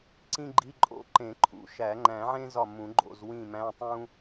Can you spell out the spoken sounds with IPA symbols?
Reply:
ǀĩ˥ɡ͡ǃi˧˥˧ ǃʼo̰˧˥˧ǃẽ˨˩˦ǃʰṵ˨˩˦ ʃæ˨˩˦ŋ͡ǃæ̃˨˩˦ʕẽ˥ zɒ˦˨mũ˨˩˦ ɡ͡ǃo̰˦˨zwĩ˦˨mæ̃˧˥˧ tˤũ˥

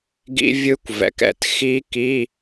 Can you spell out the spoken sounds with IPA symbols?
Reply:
ɡḭ˦˥vʲɯ˦˥kʷvɛ̰˨kɛ̰˦˨t xi˦˥ki˧˥˧

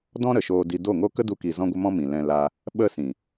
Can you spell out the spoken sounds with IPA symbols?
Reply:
dɔ̃˦ɾə˨ʃoː˧di˧ do˦˨ŋo˦ kə˦du˧ki˨ zɔ̃˦ɡʷə˦ mɔ̃˦mĩ˨lɛ̃˧ la˧ | ɓə˦sĩ˨

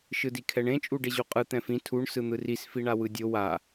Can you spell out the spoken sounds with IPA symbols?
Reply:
ʃɯdikʰɛɳẽ t͡ʃʼuɖeʑuqʼɯ t̪ɛ̃fĩ tʰuɳ sɯn̪ɯris fiɳawɯdʲo wa

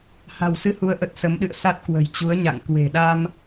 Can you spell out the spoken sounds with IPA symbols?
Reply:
ha̤˨˩wsɨ˧hu˨˦ə̯ʔə˨˩t̚ sə˨˦mɗɨ̰˧˨ə̯sa˦˥t̚ kwə̤˨˩jt͡ɕu˨˦ə̯ɲa̰˧˨ŋ kwe̤˨˩ɗa˧m

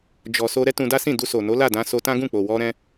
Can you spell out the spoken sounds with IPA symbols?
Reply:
d͡ʒɔ˨so˧ ɾɛ˦tũ˧da˦sĩ˦˨ du˧so˨no˨˦ la˦˨dã˧so˧tã˦ ɡũ˦˨k͡po˨wɔ˧ ɾɛ̃˦

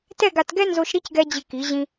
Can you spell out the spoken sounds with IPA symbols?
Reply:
tɛ˥˧ɡa˧tɡɛ˥ nzo˧ʃɾi˥˧cɡɛ˧ d͡ʑɪ˧ki˩˧ʑĩ˧

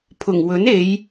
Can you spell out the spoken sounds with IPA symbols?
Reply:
pʰʊ˨˩ŋwɵ˨˥ne˨˧j

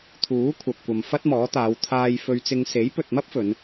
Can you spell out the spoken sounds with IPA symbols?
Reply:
t̪ʰuː˨˥kʷʰɐ˨p̚kʷɐ˨m fɐ˥t̚mɔː˨˥t̪aː˨˧w t̪ʰaː˧jfɵ˧ɥt͡sɪ˧ŋ se˨˥jpɵ˨t̚mɐ˥p̚ fɵ˨˧n

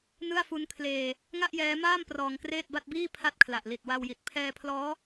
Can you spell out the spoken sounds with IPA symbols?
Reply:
nɯ˥˩a̯fu˦˥nkʰleː˧ | ŋa˥˩ʔjɛː˦˥maː˥˩m prɔː˧ŋkreː˥˩t̚ba˥˩t̚biː˥˩ pʰa˥˩t̚kʰla˨˩ʔ li˨˩t̚wa˧wji˨˩t̚ pʰɛː˧pʰlɔː˦˥

